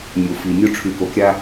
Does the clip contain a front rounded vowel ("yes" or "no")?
yes